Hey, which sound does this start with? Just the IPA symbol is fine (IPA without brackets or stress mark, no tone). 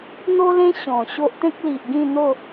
n̪